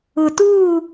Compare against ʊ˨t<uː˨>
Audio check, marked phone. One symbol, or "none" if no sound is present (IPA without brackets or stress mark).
uː˦˨